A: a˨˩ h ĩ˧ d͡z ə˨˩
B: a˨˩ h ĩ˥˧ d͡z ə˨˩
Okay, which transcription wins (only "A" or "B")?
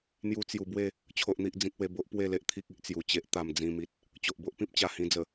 A